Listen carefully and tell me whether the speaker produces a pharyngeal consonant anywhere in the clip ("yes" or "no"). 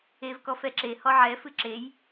yes